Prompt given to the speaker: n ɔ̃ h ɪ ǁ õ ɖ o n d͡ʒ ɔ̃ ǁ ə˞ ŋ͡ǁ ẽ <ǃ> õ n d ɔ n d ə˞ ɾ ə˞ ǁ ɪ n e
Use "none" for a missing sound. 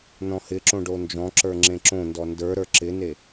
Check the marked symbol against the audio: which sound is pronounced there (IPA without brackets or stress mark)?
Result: ǁ